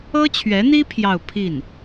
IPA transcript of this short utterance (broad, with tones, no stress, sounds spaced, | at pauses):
ɤ˥ t͡ɕʰ ɥ ɛ˧˥ n̪ i˥ pʰ j ɑ˥˧ ʊ̯ pʰ i˥˩ n